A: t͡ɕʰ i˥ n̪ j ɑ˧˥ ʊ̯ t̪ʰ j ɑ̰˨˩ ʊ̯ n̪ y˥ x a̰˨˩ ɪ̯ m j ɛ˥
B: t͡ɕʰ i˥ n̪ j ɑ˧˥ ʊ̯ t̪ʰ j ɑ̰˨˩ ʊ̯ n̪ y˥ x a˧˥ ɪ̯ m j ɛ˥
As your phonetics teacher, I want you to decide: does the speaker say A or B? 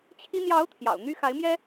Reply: B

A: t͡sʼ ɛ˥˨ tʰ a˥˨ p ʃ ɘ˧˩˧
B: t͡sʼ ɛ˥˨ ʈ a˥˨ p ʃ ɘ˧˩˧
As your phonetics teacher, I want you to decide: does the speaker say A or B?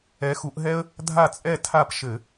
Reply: A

